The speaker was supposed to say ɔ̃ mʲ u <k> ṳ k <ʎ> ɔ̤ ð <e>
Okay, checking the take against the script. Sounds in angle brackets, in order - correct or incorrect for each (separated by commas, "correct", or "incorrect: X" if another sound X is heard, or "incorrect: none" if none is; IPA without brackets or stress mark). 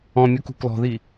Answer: correct, incorrect: l, incorrect: i